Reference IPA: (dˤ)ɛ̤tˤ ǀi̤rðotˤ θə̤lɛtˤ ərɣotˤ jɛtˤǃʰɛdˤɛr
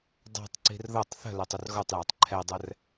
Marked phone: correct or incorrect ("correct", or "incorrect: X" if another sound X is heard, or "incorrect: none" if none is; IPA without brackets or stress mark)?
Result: correct